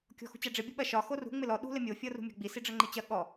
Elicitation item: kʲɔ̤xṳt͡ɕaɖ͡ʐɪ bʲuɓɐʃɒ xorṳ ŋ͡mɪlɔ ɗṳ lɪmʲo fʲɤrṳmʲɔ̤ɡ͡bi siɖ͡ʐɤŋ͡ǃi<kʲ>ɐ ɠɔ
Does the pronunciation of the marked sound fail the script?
yes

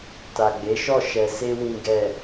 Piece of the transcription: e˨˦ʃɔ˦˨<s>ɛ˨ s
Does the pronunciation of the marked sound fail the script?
yes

